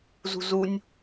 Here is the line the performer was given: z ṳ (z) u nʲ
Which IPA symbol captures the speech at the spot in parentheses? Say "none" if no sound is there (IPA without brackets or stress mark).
z